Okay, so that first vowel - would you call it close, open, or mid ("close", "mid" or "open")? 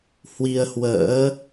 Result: close